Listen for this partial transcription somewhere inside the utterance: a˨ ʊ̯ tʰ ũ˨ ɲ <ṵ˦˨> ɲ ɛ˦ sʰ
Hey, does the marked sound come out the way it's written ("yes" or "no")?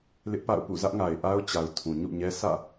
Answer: yes